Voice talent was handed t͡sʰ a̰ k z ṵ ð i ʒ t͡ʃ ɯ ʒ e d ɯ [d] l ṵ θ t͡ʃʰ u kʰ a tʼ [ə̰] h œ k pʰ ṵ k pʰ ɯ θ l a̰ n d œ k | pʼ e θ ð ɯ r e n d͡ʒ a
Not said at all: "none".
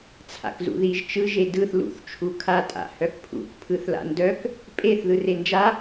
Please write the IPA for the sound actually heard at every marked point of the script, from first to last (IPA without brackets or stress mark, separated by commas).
θ, a̰